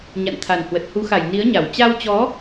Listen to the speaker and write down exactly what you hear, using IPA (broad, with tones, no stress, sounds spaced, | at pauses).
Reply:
ɲ a̰˧˨ n t̪ʰ a˨˩ n h w ə˨˩ t̚ h u˨˦ x a˧˩ j n i˨˦ ə̯ ɲ a˧˩ w t͡ɕ a˧ w t͡ɕ ɔ˨˦